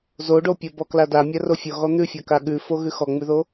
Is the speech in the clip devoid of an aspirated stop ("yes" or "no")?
yes